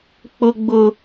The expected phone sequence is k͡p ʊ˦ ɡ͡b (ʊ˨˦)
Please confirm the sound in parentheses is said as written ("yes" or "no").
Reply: no